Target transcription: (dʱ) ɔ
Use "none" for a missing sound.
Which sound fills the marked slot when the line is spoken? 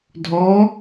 dʱ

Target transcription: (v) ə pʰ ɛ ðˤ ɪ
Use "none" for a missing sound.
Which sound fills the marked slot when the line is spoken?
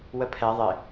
w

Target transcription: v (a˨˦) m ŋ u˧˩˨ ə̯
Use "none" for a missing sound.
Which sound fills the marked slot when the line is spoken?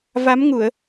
a˨˦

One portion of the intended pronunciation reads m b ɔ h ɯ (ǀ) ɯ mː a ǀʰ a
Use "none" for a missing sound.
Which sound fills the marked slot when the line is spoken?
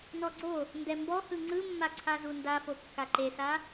ŋ͡ǀ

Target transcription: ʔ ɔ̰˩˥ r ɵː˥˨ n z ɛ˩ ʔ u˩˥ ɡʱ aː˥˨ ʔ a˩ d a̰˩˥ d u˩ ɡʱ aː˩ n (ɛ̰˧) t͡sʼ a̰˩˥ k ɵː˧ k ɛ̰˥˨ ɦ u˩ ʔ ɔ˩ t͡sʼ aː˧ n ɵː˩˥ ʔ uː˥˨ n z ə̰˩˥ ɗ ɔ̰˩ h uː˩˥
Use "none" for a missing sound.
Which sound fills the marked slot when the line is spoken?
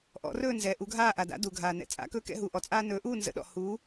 ɛ̰˩˥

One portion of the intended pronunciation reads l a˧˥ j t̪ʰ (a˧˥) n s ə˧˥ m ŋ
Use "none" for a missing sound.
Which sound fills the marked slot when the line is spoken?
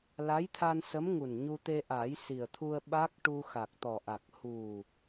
a˧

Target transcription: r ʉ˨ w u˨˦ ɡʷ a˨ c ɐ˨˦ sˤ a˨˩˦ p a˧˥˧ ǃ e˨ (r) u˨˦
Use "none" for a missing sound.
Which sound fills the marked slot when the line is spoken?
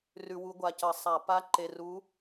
r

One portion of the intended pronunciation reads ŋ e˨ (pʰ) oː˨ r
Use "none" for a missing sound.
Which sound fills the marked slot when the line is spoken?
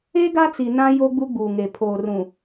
pʰ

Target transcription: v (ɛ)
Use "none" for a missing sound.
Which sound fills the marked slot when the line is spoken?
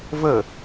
ə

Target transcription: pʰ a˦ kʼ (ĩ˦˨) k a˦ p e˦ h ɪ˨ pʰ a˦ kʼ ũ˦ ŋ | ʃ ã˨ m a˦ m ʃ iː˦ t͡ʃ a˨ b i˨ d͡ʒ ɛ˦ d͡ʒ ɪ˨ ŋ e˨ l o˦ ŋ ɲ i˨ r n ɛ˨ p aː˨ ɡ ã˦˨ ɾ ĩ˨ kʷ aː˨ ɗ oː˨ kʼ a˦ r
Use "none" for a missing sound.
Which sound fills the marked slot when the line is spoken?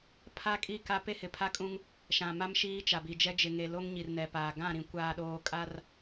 i˦˨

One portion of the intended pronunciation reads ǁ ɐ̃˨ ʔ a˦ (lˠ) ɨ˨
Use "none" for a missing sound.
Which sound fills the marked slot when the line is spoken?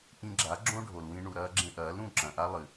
lˠ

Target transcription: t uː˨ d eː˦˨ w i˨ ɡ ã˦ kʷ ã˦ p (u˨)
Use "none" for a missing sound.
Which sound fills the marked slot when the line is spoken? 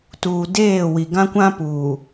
uː˨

